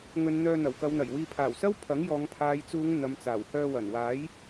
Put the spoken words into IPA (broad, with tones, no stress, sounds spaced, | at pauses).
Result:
ŋ ɵ˨˧ n n̪ œː˧ n̪ ɐ˨˩ w k ɐ˨˧ w n̪ ɐ˨˩ j w iː˨ pʰ aː˨˩ w s ɐ˥ w pʰ ɐ˨˥ ŋ j ɔː˨˧ ŋ pʰ aː˨ j t͡s uː˨˧ ŋ n̪ ɐ˨ m t͡s aː˨˩ w h œː˧ w ɐ˨˩ n w aː˨˥ j